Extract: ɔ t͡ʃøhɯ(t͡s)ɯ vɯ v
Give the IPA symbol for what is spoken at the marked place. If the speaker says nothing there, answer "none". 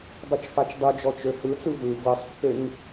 t͡s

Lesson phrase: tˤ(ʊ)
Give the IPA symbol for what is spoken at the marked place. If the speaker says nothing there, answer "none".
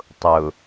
ʊ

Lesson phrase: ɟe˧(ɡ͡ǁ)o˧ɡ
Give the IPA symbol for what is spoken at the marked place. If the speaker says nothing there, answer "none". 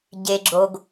ɡ͡ǁ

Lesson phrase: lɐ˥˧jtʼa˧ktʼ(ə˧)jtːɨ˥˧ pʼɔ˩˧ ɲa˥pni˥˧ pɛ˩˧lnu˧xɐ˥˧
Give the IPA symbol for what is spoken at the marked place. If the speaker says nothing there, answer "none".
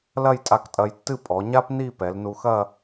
ɐ˧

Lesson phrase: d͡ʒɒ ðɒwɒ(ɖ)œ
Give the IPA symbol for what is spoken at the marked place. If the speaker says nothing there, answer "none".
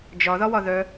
ð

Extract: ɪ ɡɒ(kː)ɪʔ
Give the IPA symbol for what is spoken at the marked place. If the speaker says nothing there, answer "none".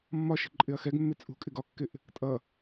kː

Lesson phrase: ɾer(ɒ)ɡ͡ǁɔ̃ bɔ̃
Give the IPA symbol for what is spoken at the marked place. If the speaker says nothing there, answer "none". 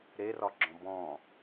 ɒ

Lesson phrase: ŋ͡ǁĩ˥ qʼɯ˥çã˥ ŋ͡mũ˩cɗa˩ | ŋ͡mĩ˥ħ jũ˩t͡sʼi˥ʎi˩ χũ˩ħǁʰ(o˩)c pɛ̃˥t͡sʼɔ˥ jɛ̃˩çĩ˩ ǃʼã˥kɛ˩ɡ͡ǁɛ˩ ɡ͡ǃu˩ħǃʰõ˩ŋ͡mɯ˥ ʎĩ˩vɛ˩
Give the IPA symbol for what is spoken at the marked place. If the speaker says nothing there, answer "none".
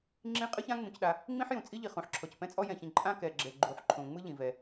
ɔ˩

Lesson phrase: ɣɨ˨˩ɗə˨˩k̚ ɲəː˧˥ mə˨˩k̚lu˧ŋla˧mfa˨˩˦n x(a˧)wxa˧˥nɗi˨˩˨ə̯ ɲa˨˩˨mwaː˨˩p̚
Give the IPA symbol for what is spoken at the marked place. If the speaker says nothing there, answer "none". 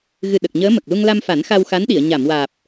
a˧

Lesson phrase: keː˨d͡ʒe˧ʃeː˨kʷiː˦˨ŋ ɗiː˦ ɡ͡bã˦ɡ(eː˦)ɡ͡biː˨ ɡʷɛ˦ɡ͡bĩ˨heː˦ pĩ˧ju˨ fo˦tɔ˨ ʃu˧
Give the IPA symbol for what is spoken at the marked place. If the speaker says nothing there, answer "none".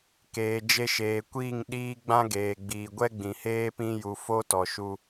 eː˨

